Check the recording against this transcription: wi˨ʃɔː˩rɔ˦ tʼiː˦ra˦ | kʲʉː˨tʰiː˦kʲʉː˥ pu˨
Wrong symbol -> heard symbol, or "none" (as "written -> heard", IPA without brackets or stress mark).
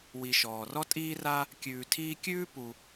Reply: none